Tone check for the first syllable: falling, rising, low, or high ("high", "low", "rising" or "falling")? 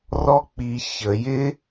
high